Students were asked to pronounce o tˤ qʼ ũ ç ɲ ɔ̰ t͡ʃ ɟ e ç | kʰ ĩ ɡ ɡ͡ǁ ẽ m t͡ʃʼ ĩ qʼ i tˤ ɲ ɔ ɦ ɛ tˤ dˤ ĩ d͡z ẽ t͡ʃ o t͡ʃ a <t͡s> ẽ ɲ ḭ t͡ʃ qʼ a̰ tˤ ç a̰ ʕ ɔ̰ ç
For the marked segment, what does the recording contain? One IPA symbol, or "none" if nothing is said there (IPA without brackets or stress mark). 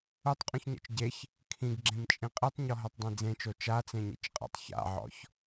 t͡s